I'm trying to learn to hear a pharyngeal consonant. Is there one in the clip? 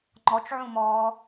yes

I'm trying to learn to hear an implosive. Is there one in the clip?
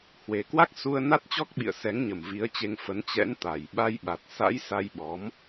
yes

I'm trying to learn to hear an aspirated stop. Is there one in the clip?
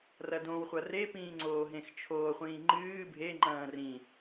yes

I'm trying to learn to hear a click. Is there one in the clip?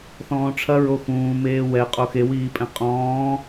no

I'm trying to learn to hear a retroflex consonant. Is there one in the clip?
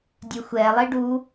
yes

